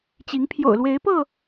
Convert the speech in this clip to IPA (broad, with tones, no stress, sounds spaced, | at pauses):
t͡ɕ i˨˦ ŋ pʰ j o̰˨˩ ʊ̯ l w e˨˦ ɪ̯ p ɤ˥˨